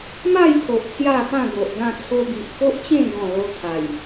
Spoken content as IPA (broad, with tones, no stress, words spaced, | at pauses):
ma˥˧jt̪ʰo˨ʔ t͡sja˥˧pã˥˧ ɡo˨ʔɡã˥˧ t͡sʰo˧bi˨ʔko˦ʔt͡ɕẽ˥˧ ɡɔ̃˥˧lo˦ t̪ʰa˨˩j